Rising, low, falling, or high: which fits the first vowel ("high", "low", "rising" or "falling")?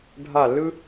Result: falling